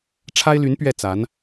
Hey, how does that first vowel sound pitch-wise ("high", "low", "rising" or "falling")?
high